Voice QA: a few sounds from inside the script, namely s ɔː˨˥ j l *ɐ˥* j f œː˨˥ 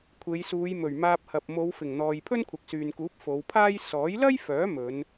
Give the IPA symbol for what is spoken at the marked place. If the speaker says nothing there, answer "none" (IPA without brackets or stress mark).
ɐ˥